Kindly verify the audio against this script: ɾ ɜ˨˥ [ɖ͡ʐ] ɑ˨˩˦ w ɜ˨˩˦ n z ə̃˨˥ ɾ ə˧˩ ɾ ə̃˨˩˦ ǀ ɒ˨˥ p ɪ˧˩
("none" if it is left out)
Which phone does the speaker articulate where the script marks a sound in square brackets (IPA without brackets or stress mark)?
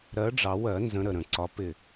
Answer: ɖ͡ʐ